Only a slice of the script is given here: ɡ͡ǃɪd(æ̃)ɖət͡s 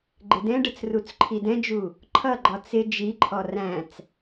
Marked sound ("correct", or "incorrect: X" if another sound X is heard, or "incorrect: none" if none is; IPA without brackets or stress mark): incorrect: ɛ̃